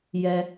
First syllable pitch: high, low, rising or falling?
high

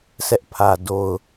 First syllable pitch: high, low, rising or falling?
high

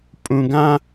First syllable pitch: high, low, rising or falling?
low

